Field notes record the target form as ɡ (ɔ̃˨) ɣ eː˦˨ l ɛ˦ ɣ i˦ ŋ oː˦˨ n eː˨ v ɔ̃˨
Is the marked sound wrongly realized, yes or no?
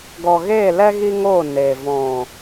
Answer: yes